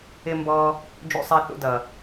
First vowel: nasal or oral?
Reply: oral